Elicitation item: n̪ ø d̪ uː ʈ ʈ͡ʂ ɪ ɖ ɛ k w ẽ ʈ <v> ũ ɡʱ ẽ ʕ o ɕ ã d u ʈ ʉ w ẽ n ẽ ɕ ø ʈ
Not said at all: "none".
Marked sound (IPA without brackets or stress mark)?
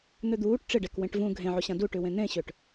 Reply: v